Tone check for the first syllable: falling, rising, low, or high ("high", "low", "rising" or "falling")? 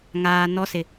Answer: low